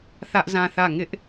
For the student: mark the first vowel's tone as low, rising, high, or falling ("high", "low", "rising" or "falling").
high